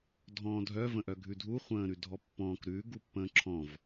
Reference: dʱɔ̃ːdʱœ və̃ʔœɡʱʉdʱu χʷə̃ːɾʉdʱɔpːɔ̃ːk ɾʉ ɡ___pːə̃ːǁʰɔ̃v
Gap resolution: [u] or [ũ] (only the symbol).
u